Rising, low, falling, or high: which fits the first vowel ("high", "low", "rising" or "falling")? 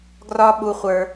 high